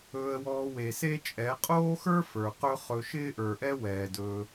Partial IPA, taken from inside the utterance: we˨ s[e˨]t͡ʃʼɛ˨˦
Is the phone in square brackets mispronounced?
yes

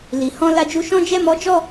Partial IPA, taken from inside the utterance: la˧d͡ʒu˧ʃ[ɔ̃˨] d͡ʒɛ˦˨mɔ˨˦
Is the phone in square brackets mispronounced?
yes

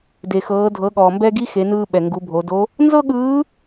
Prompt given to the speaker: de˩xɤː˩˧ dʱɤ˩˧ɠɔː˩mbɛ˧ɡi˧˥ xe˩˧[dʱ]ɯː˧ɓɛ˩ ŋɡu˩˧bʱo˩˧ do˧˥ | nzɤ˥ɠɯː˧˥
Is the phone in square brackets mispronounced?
yes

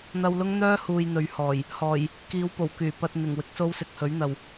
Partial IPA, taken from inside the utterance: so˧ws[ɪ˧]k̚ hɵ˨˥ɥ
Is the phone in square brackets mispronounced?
yes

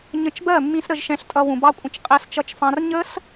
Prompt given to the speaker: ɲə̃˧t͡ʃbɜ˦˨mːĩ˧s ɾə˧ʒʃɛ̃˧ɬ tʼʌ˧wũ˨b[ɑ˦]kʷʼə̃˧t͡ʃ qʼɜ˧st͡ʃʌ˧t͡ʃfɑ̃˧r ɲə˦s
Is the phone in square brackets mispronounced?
no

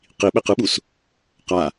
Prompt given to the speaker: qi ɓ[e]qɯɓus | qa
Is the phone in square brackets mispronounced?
no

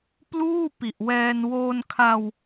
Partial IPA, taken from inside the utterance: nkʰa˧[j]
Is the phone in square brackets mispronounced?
yes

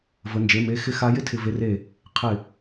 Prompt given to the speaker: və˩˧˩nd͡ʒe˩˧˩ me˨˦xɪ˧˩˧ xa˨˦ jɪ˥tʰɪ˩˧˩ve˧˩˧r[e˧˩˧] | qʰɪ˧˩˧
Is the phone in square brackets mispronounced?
no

